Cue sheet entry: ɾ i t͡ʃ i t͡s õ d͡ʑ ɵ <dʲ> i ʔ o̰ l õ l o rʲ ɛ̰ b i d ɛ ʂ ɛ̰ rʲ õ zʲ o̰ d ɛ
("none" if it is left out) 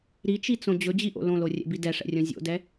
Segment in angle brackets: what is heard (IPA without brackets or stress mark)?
d͡ʑ